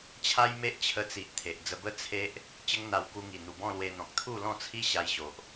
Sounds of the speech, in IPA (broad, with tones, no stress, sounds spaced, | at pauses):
t͡ɕʰ a˦ j m e˦ ʔ t͡ɕʰ ə˧ t͡s i˨ ʔ t̪ʰ e˨ ʔ d͡z ə˧ b ə˦ t͡sʰ e˦ ʔ | t͡ɕ ə˦ ŋ n̪ a˧ w k u˧ ŋ i˨˩ n̪ u˨˩ b ɔ̃˥˧ l w e˧ n̪ ɔ̃˨ k̚ t̪ʰ u˥˧ l ɔ̃˥˧ t͡sʰ i˦ ɕ a˧ j ɕ o˨ ʔ